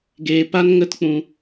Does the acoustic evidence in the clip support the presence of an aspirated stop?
no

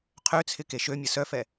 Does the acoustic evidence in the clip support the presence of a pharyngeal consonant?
no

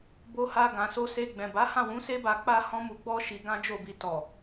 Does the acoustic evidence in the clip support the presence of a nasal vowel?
yes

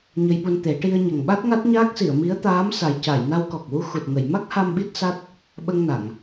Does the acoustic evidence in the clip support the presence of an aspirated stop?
no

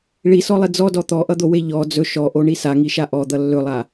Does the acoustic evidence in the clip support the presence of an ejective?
no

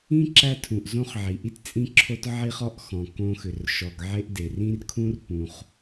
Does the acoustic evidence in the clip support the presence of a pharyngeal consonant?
yes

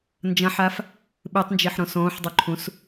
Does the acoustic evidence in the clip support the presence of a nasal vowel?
yes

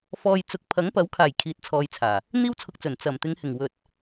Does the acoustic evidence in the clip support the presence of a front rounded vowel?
no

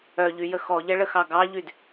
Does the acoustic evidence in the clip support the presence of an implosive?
no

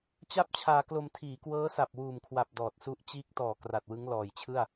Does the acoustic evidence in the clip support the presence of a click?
no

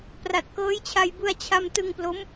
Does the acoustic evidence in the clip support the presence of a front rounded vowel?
no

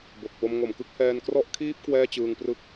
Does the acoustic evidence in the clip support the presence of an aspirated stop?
yes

